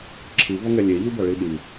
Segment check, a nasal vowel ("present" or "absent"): absent